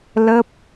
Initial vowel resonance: oral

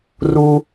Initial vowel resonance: oral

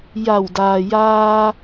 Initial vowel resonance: oral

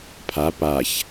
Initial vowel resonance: oral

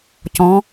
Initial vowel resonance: nasal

